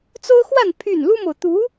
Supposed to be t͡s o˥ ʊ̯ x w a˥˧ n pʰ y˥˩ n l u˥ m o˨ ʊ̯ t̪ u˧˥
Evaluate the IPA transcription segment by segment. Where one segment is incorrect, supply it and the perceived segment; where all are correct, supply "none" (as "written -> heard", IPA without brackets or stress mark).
none